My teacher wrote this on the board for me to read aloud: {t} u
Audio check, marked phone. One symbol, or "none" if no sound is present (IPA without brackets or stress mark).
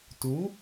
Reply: t